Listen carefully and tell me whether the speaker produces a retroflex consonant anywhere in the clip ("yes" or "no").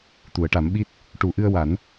yes